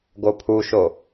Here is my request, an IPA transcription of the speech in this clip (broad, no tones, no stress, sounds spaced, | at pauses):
ɡ o pʰ u ʃ o